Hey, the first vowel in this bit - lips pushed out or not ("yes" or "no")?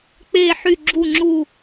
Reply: no